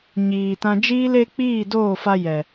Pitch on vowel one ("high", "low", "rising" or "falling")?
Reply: low